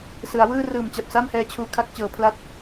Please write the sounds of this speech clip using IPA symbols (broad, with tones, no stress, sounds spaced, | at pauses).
s ɯ˩˦ a̯ w ɯː˥˩ r ɯː˨˩ m t͡ɕ a˨˩ p̚ s a˥˩ m h ɛː˧ t͡ɕʰ uː˨˩ kʰ a˥˩ k̚ t͡ɕ ɤː˩˦ pʰ l a˦˥ t̚